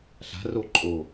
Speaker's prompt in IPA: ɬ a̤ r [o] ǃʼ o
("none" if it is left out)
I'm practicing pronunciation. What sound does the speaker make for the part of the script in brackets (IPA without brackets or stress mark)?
o